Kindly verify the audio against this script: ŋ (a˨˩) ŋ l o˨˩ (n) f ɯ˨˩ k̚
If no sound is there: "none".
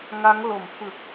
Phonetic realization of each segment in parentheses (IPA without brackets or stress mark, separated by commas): a˦˥, m